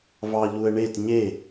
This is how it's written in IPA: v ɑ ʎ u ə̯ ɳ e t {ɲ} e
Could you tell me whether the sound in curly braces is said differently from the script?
no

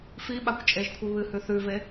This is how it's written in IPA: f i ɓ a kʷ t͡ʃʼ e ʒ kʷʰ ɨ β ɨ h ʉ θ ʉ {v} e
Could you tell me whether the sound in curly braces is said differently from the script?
no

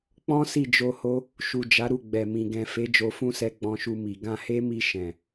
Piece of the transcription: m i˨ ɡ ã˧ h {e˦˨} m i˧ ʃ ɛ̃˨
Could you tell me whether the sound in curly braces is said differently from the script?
yes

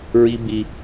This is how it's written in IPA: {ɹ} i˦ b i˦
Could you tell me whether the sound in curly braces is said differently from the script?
no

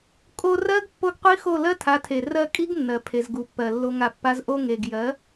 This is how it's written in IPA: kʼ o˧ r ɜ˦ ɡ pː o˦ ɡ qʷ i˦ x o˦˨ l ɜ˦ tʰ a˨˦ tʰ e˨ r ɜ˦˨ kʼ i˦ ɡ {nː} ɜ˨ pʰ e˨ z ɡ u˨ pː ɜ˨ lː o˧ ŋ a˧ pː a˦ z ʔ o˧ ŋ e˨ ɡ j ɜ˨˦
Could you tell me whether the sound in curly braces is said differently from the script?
no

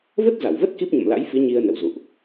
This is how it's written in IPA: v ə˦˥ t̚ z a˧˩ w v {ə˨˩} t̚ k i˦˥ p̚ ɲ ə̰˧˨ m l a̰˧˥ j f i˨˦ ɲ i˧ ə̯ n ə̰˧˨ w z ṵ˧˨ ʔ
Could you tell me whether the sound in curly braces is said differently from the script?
yes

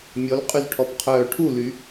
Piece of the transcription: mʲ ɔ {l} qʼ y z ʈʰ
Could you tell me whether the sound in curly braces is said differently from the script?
no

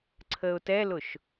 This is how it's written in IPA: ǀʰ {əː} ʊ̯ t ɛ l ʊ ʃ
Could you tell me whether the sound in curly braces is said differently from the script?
no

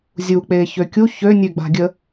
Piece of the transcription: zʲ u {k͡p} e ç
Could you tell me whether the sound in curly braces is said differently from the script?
no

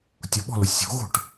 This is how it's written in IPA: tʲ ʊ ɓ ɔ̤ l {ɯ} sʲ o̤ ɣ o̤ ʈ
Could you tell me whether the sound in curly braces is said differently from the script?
yes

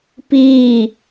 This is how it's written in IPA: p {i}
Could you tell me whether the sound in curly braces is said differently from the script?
yes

